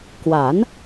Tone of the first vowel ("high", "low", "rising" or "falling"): rising